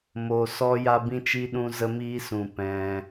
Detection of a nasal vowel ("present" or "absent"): present